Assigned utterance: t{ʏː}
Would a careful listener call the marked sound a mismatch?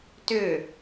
no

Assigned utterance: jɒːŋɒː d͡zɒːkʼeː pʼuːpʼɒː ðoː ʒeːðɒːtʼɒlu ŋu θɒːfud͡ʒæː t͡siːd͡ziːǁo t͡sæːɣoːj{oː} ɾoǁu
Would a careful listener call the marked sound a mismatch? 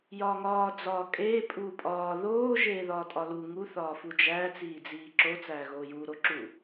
yes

